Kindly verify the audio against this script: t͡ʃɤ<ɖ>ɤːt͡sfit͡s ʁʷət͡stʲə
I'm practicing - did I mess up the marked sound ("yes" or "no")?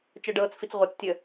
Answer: no